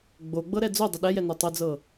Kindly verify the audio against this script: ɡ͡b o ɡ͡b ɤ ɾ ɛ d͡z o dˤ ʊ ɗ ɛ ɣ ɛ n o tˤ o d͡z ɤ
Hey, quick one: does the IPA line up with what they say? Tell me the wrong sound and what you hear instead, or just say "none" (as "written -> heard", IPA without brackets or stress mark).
ɣ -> j